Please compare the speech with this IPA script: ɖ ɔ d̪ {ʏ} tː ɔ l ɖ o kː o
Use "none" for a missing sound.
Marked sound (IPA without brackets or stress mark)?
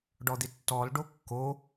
ɪ